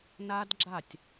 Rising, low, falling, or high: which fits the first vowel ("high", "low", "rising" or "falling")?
high